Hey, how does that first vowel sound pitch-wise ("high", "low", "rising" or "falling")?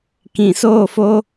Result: low